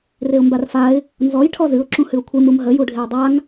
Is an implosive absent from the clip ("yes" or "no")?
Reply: yes